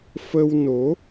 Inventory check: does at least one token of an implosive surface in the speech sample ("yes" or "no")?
no